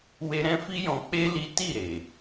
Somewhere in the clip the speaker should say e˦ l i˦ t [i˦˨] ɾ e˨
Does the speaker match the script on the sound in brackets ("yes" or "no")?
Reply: yes